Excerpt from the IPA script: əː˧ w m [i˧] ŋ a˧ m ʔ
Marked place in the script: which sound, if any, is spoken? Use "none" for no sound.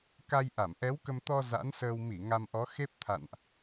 i˧˩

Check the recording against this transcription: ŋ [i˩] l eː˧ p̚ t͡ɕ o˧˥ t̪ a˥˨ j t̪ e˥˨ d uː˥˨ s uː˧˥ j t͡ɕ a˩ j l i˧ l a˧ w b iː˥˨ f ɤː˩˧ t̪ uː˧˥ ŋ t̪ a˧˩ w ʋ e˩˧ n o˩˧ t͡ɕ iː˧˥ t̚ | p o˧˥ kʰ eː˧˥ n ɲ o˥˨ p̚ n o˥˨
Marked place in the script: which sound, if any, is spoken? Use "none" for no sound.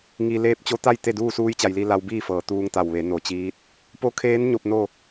i˩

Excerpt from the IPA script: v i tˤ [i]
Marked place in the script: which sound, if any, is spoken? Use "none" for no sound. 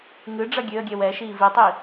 i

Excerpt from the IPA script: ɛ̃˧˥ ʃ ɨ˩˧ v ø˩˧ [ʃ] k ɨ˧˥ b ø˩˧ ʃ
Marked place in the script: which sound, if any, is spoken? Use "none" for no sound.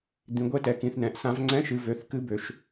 θ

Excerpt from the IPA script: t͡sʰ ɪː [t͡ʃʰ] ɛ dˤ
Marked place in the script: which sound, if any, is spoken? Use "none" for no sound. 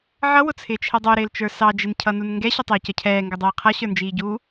t͡ʃʰ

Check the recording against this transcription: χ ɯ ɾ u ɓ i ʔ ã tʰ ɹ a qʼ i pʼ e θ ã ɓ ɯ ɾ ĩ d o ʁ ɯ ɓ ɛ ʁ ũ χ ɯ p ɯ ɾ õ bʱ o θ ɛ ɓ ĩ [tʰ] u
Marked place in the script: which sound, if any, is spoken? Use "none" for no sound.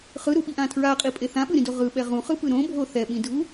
dʱ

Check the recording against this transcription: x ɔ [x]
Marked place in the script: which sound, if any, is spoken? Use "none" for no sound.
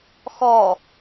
none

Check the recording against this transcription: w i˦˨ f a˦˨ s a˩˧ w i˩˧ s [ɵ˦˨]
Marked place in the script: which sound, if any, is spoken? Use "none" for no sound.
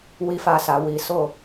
o˦˨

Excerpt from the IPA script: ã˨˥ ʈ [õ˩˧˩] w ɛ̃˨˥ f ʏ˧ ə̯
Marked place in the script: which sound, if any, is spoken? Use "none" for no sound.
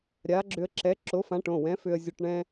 õ˩˧˩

